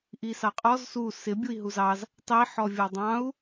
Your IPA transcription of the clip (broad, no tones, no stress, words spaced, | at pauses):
ʔisɑqʼɔz su sɪ bʲui̯ɦuzɑz | tˤi ħɔvʲʌdˤɑ̃u̯